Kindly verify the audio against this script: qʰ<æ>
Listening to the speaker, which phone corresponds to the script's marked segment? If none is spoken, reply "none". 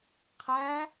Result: æ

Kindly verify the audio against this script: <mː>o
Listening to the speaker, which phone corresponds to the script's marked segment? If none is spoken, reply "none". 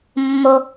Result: mː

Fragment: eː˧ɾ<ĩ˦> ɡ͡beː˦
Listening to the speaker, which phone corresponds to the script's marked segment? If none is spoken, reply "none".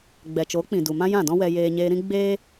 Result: ĩ˦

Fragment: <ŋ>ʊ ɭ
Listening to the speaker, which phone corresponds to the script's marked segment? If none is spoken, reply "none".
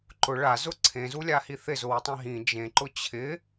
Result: ǃ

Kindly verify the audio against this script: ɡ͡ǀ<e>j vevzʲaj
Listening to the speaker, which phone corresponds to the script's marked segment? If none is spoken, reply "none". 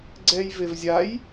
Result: ɛ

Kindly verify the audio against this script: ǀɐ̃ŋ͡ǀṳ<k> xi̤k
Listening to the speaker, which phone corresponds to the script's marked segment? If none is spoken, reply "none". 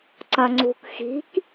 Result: k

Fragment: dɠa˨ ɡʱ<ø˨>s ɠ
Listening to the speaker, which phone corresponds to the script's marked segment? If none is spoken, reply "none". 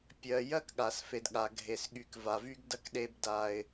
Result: e˨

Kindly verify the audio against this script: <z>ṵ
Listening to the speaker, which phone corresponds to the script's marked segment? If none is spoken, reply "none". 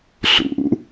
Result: ɬ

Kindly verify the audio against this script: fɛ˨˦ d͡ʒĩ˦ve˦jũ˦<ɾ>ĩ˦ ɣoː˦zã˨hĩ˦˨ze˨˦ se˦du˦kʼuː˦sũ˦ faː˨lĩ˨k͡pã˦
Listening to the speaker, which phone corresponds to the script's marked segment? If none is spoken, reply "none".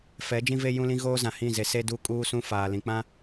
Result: l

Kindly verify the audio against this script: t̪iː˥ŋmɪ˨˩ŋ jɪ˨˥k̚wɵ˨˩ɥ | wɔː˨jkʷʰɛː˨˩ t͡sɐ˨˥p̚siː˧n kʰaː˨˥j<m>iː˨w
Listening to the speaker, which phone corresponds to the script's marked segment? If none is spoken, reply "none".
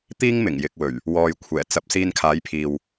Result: pʰ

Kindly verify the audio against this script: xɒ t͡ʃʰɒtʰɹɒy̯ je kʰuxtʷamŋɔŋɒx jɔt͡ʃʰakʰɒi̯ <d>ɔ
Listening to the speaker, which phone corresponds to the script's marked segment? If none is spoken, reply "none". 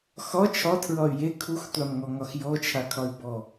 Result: b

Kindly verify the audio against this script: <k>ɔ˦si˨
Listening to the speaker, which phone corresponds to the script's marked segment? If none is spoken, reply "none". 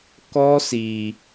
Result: k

